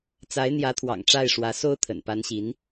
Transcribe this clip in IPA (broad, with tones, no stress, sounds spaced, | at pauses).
t͡s a˧˥ ɪ̯ n̪ j ä˧˥ t̪ʰ w ɑ̰˨˩ ŋ ʈ͡ʂ a˥˩ ɪ̯ ʂ w ä˧˥ s o˥ ʊ̯ t̪ʰ ə̰˨˩ n p a˧˥ n ɕ i˧˥ n